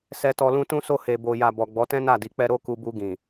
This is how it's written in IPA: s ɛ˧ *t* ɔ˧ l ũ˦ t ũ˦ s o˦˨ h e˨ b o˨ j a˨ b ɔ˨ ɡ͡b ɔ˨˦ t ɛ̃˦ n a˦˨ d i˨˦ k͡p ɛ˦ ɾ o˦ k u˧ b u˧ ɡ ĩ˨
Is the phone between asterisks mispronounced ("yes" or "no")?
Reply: no